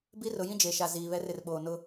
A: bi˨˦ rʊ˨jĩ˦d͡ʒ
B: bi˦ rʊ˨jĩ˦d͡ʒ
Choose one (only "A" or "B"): B